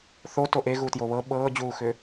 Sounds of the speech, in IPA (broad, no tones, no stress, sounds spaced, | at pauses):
θ o t o ʔ e ɣ u t j o β ɤ ɓ ɤː d͡ʑ uː x ʏ